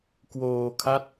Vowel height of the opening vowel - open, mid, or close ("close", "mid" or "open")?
mid